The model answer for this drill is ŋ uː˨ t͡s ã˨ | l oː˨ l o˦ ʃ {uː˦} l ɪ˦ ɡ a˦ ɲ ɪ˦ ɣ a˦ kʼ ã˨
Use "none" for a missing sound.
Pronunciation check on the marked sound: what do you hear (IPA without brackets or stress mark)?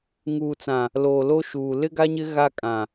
uː˨